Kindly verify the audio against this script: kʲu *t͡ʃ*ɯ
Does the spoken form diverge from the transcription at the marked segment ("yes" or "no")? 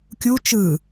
no